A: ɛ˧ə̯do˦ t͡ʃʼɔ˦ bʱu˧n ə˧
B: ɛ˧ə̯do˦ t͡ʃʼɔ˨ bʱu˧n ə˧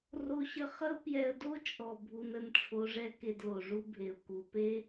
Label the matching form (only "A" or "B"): B